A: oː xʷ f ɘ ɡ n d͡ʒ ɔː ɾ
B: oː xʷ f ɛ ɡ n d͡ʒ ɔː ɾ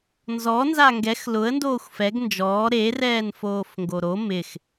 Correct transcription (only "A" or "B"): B